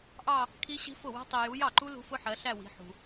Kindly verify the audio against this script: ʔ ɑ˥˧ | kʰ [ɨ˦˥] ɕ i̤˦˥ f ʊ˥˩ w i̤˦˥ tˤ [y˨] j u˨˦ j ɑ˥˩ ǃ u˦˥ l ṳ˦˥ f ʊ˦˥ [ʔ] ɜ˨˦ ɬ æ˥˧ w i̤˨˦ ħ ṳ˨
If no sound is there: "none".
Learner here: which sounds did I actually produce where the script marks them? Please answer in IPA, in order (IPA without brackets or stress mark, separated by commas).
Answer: i˦˥, i˨, ħ